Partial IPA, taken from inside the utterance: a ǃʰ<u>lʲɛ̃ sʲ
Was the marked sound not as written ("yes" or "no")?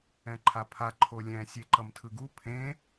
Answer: yes